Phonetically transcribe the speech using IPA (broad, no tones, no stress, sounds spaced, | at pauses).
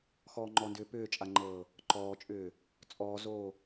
x ɔː ŋ͡ǃ ɔ n d ʏː p ʏː t͡ʃʼ a ŋ͡ǃ ɤː | ǃ ɔː t͡ʃʼ ʏː | t͡sʼ ɔː z oː